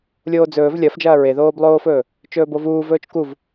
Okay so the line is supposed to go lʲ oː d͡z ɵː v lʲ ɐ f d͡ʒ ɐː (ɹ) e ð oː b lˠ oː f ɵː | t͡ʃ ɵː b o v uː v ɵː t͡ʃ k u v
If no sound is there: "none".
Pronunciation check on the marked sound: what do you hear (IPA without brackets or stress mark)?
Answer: ɹ